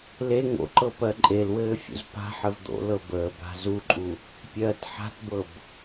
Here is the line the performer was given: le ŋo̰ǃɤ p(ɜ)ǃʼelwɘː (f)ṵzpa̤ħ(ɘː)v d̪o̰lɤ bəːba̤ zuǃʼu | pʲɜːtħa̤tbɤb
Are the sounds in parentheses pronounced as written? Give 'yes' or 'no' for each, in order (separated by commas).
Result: yes, no, no